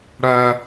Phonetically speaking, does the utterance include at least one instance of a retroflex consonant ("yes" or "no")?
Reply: yes